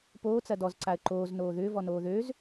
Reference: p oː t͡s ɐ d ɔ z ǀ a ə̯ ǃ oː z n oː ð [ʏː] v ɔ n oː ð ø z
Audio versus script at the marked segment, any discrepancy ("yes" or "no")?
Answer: no